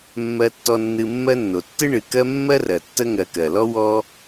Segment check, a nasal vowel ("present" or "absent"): absent